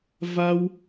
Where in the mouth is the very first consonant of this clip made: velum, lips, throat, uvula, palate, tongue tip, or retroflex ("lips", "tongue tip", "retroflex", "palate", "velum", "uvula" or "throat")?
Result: lips